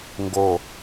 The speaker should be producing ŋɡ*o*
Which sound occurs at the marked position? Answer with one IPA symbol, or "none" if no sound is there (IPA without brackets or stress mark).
o